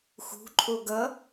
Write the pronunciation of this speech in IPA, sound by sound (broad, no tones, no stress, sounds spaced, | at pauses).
x ṳ ǃʼ o ɡ ʌ